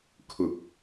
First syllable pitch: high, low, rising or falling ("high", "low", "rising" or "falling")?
low